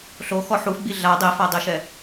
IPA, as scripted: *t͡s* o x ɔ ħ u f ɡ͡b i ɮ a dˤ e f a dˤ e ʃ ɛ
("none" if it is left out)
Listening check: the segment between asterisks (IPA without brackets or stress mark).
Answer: ɬ